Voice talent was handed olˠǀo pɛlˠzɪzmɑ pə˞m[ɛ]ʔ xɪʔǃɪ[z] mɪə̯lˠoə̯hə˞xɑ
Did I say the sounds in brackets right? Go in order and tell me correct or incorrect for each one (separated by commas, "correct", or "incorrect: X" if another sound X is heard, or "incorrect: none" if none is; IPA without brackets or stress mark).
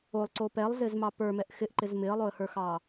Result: correct, correct